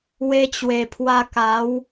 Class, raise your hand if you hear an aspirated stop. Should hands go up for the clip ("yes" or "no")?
yes